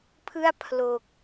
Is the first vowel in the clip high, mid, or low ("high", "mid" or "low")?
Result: high